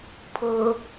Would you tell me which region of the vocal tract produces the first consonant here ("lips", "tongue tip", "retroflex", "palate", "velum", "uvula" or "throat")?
lips